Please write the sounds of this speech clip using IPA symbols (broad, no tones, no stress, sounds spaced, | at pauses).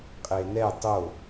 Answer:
qʼ e n ɛ tˤ o